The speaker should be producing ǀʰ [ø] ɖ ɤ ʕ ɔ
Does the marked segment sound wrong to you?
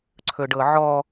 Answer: yes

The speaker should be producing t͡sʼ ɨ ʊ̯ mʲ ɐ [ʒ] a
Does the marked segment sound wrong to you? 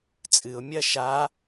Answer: yes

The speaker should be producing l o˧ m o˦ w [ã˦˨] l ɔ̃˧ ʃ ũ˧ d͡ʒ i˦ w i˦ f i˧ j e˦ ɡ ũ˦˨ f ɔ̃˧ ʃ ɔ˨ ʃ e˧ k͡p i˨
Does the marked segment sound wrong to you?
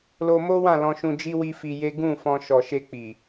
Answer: no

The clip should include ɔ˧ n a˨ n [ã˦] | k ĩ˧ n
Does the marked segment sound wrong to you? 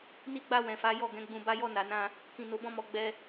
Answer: yes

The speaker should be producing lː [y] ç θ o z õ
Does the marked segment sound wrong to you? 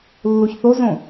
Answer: yes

